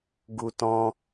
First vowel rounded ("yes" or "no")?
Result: yes